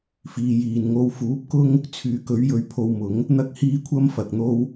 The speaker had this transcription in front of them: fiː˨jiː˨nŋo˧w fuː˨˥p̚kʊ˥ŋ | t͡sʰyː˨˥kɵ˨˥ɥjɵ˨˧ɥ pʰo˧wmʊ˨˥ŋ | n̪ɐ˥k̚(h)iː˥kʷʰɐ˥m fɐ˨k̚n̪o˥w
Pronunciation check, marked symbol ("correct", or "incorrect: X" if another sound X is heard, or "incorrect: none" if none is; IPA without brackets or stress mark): correct